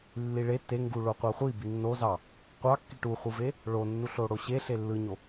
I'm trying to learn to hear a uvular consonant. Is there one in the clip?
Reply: yes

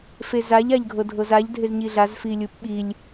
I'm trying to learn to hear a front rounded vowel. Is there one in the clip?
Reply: no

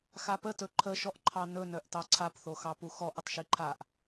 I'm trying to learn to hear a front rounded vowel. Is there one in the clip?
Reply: yes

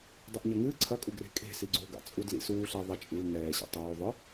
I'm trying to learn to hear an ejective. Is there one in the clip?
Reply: yes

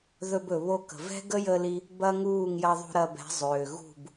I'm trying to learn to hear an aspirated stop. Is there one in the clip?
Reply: no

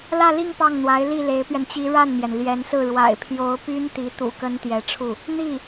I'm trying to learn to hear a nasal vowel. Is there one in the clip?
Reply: no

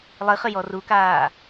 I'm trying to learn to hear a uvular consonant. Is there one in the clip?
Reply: yes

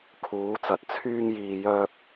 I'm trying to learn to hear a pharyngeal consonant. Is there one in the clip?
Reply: no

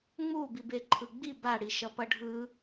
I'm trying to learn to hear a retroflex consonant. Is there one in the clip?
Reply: yes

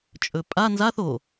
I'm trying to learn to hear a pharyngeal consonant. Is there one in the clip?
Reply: no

